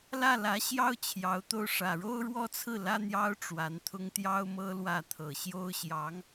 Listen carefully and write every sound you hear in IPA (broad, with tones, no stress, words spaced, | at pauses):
lä˥˩lä˧˥ɕjɑ˥ʊ̯ t͡ɕʰjɑ˧˥ʊ̯t̪o˥˩ʊ̯ ʂä˨˩ɻo˥ʊ̯ɻwɔ˥t͡sʰɹ̩˥˩ lä˥n̪jɑ˥ʊ̯ ʈ͡ʂwa˧˥nt̪ʰʊ˥ŋ t̪jɑ˥ʊ̯mɤ˥lwä˥˩ t̪ʰɤ˨˩ɕjo˥ʊ̯ɕjɑ˧˥ŋ